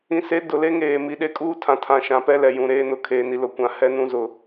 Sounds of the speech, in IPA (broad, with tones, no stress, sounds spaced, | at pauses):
ĩ˨ s e˨˦ d ʊ˨ l e˦ ŋ eː˨ m i˨ ɗ e˦ kʼ uː˦ tʰ ã˨ tʰ ã˨ ʃ ã˨ p ɛ˦ l ɛ˨ j ũ˨ ɾ eː˦ n ʊ˨ kʰ eː˨ n i˨ l ʊ˨ kʷ ã˨ h ɛ˦ n ũ˦ z ʊ˨